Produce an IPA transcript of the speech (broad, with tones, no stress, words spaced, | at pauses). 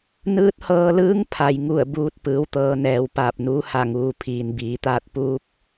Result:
nɯː˧˥t̚hɤː˧lɯː˧˥ŋpʰa˩j ŋu˧˩ə̯buː˧t̚ pɯː˩˧w t̪ɤː˧nɛː˩w paː˧˩p̚nuː˧˥ha˧˩ ŋuː˩pʰiː˩nbiː˩˧t̪aː˥˨t̚ puː˧˥p̚